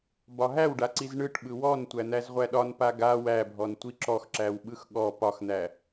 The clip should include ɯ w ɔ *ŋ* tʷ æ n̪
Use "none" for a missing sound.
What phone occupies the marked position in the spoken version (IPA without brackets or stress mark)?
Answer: n